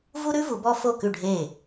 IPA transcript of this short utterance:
v u˥ ɾ ʉ˥ v u˨˩˦ b ɔ˥ f o˥˩ k ʉ˥˩ ɖʱ e˥˩

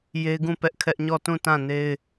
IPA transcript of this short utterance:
j e˦ ɡ ũ˦˨ p ɛ˦ ʔ kʰ ɛ˦ ʔ ɲ ɔ˦˨ t ũ˦˨ t ã˦˨ n e˦ ɪ̯

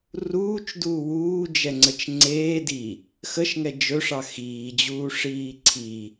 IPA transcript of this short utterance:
r uː t͡ʃ d uː w uː d͡ʒ ɛ ŋ͡ǀ ə t͡ʃ ŋ͡ǀ eː d i | x ə ʃ ŋ ɛ d͡ʒ ɵ ʂ ɑ x iː d͡ʑ uː ʂ iː ǀʰ i

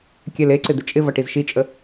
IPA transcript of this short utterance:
kʲ ɛ l e ǀ ɪ d̪ ɪ t͡ʃʼ ɪ v ʌ ʈ i z ʃ i t͡ʃʼ ə

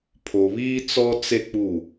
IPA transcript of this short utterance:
pʰ o˨ β iː˦ t͡s ɔ˦ t͡s e˦ k͡p u˦˨

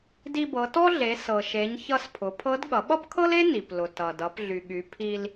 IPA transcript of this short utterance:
d i˧ b ɤ˩˧ t ɔ˥ ɮ e˩˧ s ɤ˩ ʃ e˩˧ ɲ ç ʌ˧ s pʰ ʊ˩˧ pʰ ɤ˧˥ d ɠ ʌ˩˧ ɓ ʌ˥ p kʰ ɤ˥ l e˥ n i˩ p l ʊ˩ t ʌ˩ d ʌ˩˧ p ɮ y˩ ɠ y˩˧ pʰ i˧ l

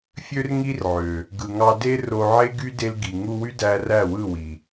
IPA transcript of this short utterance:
fʲ ø˦ r ŋ i˦ r ʕ ø˨ | ɡ ɯ˨ ŋ ɑ˧ d e˦ r o˧ ʕ e˦ ɡ y˦ d e˧ l ɡ i˨ ŋ u˧ w y˦ d æ˧ r æ˦˨ w ɯ˦˨ w i˨

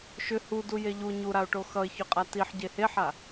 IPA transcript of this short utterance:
ʃ ʏ h u d u j e ʎ u ɲ u ɾ a ʊ̯ ʈ o x ʌ ɪ̯ ç ʏ qʼ a t i ħ ɟ e h e ħ a

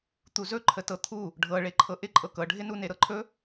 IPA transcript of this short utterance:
t̪ u z ɵ ǃʰ ə t ɤ t̪ʰ u | ɖʱ ɤ ɭ e ǃʰ ɤ ʔ ɪ ǃʼ ɤ k ɤ ɖʱ ɪ n u n e ɾ ɤ ǃʰ ɵ

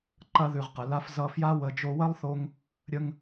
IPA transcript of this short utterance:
ǃ ɐ˧ ð ʉ˨ ʁ q ə˨ l a˧ f z ʌ˧ f j a˦ w ə˧ d͡ʒ o˧ w ɐ˦ lˠ θ o˧ ŋ | ɾʲ ə˧ ŋ

